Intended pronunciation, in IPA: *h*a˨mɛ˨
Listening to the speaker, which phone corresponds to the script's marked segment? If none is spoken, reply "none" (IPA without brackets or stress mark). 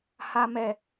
h